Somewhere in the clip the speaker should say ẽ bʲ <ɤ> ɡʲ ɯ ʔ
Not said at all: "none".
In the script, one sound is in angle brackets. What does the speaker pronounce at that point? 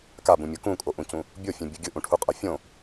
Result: ɯ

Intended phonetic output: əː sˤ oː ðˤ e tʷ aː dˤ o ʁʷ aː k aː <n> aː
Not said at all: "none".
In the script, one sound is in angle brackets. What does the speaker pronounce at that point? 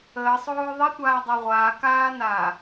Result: n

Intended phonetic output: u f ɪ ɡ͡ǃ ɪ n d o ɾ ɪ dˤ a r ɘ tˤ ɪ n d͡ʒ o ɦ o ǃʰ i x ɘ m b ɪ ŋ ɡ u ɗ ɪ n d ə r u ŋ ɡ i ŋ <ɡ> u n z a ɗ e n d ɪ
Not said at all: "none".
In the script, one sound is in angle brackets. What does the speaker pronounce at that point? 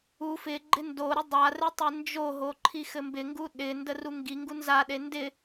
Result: ɡ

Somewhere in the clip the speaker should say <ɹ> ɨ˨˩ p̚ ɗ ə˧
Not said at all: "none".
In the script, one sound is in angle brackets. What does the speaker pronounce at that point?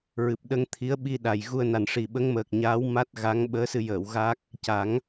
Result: ɹ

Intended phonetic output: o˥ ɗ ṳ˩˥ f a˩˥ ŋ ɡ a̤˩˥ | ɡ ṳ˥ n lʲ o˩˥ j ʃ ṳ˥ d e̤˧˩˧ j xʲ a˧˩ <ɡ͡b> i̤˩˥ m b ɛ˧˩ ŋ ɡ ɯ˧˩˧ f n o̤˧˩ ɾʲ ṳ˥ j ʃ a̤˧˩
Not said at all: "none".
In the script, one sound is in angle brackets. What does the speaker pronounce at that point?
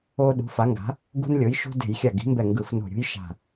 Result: ɡ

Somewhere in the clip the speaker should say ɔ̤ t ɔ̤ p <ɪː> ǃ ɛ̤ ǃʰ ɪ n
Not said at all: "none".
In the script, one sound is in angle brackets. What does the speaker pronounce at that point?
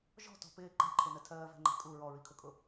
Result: ɪː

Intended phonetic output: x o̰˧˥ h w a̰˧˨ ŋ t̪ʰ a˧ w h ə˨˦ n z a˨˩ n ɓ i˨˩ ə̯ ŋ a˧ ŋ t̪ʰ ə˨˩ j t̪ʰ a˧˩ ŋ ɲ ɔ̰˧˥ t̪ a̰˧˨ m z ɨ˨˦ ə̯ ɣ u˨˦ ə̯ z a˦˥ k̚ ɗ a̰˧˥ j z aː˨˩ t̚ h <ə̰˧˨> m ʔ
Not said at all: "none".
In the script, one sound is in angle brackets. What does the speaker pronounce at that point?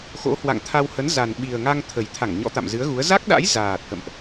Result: ə̰˧˨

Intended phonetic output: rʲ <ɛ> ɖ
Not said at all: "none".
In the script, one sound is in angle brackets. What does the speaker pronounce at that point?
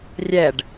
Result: ɛ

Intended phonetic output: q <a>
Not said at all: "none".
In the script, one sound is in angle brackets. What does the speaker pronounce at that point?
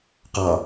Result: ɑ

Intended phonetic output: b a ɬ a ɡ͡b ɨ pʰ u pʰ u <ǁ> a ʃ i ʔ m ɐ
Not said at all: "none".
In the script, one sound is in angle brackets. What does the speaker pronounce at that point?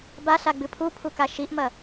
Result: k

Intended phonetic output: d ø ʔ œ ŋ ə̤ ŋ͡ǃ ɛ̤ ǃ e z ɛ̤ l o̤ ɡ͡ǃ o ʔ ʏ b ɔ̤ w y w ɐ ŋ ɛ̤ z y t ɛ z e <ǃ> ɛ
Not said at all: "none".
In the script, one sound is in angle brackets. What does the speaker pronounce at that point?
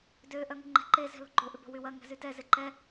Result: ǃ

